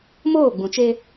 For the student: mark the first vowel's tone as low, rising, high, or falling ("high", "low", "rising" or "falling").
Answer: falling